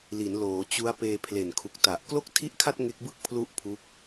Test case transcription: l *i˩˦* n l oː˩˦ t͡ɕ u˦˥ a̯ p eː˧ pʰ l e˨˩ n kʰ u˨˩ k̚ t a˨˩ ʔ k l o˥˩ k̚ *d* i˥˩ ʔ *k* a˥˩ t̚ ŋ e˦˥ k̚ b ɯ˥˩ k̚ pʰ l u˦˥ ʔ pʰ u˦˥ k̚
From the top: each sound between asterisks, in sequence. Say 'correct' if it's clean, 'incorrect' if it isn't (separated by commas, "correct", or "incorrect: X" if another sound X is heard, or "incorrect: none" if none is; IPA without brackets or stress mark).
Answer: correct, incorrect: tʰ, incorrect: kʰ